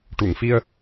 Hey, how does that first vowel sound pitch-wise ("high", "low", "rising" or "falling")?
low